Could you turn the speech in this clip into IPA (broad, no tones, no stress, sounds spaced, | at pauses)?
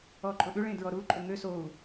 ɔ ǃʼ ʊ ɓ ʏ ɭ ẽ d ɹ ɔ ɾ u ǃʼ ʏ ŋ ø s o u̯